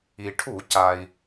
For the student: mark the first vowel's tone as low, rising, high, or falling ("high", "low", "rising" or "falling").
low